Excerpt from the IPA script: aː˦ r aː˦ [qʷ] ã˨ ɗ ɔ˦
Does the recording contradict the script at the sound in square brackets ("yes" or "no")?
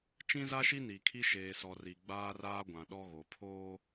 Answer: yes